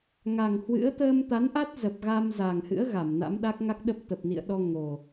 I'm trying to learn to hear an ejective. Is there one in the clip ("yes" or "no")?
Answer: no